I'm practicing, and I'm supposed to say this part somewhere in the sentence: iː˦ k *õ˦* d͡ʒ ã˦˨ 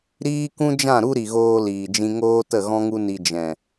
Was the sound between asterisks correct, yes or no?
no